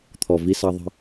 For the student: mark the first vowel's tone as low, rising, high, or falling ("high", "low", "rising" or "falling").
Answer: low